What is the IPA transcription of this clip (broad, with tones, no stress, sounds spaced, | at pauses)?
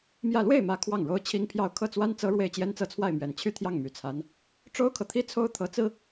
m j ä˥˧ l w e˥˩ ɪ̯ m ä˧˥ kʰ w ɑ˥˩ ŋ ɻ o˥ ʊ̯ t͡ɕʰ i˥ ŋ pʰ j ɑ˥˧ ʊ̯ kʰ ɤ˥˩ t͡s w a˥ n t͡s ɤ˥ ɻ w e˥˩ ɪ̯ t͡ɕ j ɛ˥ n t͡s ɤ˥˧ t͡sʰ w a˥˩ ɪ̯ m ɥ ɛ˨˩ n t͡ɕʰ y˥˧ t̪ʰ j ɑ˥˩ ŋ m y˨˩ t͡sʰ a˧˥ n | ʈ͡ʂ o˥ ʊ̯ kʰ ɤ˨ t̪ʰ i˥ t͡sʰ o˥ ʊ̯ t̪ʰ ɤ˧˥ t͡s ɹ̩˥